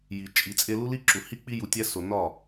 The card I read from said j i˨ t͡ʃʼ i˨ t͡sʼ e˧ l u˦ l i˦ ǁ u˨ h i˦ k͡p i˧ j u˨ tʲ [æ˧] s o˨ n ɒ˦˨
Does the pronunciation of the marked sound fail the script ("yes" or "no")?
no